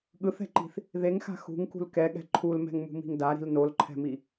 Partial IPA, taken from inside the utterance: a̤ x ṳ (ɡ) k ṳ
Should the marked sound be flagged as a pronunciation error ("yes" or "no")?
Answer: yes